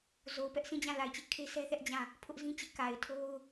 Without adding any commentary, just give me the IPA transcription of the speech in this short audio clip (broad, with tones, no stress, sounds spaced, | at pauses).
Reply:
z o˨ ʊ̯ p ɛ˦ ʔ sʰ ĩ˦˨ d͡ʑ ã˦˨ l a˨ ɪ̯ t͡ɕ ɪ˦ ʔ kʰ e˦ sʰ ɛ˦ θ ɛ˦ ʔ d͡ʑ ã˦˨ | pʰ ʊ˦ ʔ z ĩ˦ t͡ɕ ɪ˦ ʔ k a˨ ɪ̯ tʰ o˦ ʊ̯